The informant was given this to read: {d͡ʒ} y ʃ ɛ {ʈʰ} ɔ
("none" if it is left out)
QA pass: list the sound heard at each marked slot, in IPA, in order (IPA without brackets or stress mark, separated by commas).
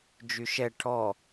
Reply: d͡ʒ, ʈʰ